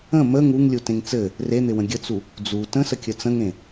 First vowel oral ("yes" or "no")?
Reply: no